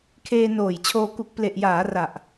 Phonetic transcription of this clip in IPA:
kʰ eː˧ n oː˨˩ j t͡ɕʰ oː˧ k u˨˩ k̚ p l e˨˩ ʔ j aː˩˦ r a˨˩ ʔ

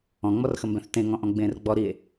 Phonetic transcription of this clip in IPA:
ɔ̃ ŋ͡m ɔ r x ə m b ɛ̃ θ t ẽ ŋ ɔ̃ ʔ ɔ̃ ɡ͡b ẽː r ɡ͡b ɔ ɾ i e̯

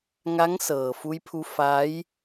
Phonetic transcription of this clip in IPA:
ŋ a˧˥ ŋ s ɤː˩ f u˧ j pʰ u˧ f a˧˥ j

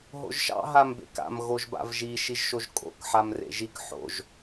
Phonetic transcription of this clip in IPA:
ɦ o̰ ʒ ʃ ɑ̰ ɦ a m b ḛ k a̰ m ɣ o ʒ b a̰ v ʒ i ʃ i ʒ ʃ o ʒ kʼ o̰ k ħ a m r ḛ ʒ i k ħ o̰ ʒ

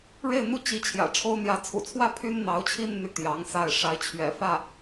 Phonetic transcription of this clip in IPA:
ɻ e˥˧ ɪ̯ n̪ u˥˩ t͡ɕ i˧˥ t͡ɕʰ j ä̰˨˩ ʈ͡ʂʰ o˥ ʊ̯ n̪ j ä˧˥ t͡sʰ ṵ˨˩ t͡sʰ w ä˥˩ pʰ y˥ n n̪ ɑ˧˥ ʊ̯ t͡ɕʰ i˥ n n̪ y˥˩ t̪ j ɑ˧˥ ŋ s a˥˩ ɪ̯ ʂ a˧˥ ɪ̯ t͡ɕʰ ɥ ɛ̰˨˩ f ä˥˩

